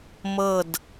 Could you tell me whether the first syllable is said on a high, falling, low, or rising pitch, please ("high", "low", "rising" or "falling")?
falling